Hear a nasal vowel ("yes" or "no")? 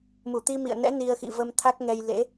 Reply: no